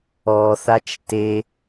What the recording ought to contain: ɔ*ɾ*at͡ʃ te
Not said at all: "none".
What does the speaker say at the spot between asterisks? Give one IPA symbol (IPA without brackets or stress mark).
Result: θ